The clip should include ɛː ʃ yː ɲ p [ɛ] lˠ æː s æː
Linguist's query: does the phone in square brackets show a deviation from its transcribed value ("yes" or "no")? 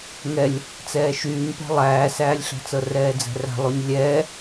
yes